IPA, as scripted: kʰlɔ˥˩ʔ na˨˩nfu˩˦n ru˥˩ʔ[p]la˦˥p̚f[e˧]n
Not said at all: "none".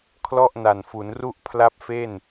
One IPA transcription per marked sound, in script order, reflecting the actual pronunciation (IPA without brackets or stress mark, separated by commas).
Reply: pʰ, e˥˩